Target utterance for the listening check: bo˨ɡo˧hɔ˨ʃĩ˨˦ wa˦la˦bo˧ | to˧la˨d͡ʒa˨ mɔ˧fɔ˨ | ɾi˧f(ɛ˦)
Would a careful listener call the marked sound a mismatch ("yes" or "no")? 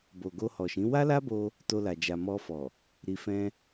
yes